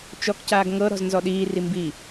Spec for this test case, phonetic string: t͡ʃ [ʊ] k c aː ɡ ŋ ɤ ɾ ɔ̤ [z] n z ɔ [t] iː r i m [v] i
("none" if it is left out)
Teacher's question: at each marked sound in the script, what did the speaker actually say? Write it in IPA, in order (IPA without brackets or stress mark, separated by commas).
ɔ, z, ɗ, b